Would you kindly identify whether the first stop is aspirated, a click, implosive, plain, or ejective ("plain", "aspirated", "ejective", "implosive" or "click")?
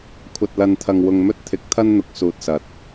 aspirated